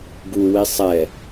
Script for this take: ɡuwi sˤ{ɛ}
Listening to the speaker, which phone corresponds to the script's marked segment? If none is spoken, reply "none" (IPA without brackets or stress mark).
ɛ